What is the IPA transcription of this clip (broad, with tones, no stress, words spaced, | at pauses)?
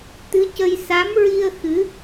t̪ɨ˧˥cə˧j sa˧˥mɹi˧ə̯ xɨ˧˥